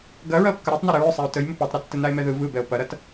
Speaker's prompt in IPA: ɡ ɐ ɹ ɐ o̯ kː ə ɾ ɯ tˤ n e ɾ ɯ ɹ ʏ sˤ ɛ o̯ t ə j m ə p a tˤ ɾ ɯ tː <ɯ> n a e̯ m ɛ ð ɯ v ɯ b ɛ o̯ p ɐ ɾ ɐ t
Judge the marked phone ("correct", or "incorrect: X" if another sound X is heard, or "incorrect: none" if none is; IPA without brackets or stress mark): incorrect: ə